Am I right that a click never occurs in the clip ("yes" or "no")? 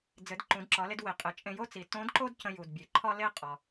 no